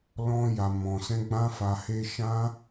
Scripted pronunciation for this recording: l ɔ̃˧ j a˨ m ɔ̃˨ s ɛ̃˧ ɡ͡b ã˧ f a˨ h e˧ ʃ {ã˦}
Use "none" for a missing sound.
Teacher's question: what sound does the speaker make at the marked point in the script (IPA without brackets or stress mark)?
ã˦